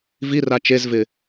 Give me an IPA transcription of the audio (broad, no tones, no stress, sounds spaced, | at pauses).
v i r a t͡ʃ e z v ɪ